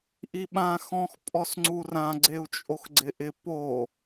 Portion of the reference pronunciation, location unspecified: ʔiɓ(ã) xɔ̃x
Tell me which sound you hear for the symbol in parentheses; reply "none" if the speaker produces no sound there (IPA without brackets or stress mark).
ã